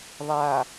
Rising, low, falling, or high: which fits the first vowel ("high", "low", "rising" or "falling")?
low